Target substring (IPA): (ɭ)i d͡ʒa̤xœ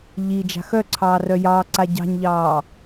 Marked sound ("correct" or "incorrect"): incorrect